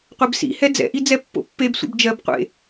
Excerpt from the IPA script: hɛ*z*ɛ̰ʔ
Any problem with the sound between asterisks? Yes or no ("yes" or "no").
yes